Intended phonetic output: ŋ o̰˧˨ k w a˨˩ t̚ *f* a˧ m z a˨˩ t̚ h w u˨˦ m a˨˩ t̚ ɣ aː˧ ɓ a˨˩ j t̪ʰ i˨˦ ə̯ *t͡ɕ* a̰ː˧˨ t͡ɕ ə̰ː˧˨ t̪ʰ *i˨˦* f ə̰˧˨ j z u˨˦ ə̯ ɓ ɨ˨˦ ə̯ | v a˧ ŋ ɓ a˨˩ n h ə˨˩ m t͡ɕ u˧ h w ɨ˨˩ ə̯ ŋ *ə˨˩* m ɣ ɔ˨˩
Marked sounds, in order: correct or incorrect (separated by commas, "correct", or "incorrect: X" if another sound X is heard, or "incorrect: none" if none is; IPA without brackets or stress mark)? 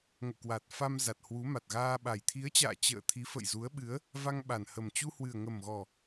correct, correct, correct, correct